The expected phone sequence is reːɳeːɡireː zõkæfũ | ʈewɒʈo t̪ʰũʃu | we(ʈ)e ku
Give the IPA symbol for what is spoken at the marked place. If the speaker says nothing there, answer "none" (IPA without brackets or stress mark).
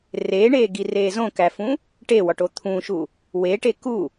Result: ʈ